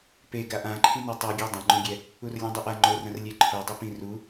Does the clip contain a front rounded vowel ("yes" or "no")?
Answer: no